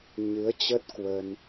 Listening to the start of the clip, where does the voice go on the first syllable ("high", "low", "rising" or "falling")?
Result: rising